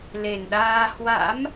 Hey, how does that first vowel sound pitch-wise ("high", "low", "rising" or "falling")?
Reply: low